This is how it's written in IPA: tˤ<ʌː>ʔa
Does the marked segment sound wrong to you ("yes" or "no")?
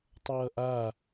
no